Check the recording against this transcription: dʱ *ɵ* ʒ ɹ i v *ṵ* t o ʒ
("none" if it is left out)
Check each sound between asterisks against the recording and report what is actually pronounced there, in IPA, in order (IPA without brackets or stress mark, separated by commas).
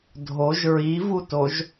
o, u